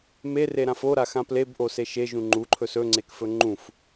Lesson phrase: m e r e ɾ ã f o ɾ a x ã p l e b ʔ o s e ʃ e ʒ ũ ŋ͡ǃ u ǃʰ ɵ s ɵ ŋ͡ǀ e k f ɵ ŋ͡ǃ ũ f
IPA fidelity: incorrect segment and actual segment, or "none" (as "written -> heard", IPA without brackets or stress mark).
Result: none